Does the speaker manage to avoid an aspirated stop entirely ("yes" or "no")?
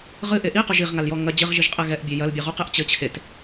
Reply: no